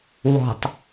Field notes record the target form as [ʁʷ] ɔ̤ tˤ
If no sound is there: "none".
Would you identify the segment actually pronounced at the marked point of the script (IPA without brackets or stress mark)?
w